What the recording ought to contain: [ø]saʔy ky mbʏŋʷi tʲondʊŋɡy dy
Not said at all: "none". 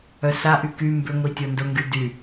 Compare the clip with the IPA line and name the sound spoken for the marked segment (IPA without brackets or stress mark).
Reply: œ